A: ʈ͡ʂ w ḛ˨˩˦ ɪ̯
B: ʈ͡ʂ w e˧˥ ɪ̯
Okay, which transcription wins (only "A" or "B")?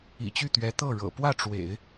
A